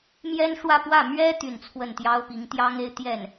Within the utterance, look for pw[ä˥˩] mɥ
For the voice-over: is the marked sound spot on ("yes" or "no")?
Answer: yes